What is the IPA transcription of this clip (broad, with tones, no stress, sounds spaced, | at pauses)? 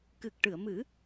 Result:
k ɨ˨˩ k̚ ʈ ɨ˨˩˨ ə̯ m ɨ˨˩˦